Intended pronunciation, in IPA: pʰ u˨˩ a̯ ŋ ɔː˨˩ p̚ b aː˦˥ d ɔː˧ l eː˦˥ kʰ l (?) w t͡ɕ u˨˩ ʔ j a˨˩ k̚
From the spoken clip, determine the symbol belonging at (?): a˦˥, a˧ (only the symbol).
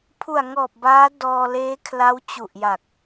a˦˥